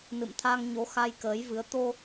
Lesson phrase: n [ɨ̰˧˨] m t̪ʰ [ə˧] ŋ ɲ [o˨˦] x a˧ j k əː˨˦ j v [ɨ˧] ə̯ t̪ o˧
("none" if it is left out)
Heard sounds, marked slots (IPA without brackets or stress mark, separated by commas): ɨ̰˧˨, a˧, o˨˦, ɨ˨˦